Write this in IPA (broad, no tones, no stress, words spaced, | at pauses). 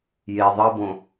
je ðˤʌbõ